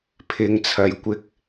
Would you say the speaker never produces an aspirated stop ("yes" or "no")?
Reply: no